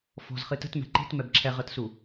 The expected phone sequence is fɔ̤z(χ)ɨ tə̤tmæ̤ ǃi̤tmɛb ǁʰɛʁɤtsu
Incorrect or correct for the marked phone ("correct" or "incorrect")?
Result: correct